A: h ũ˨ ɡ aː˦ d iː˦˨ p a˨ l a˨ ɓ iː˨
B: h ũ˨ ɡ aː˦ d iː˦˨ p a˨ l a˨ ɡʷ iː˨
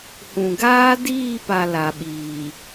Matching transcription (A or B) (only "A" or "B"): A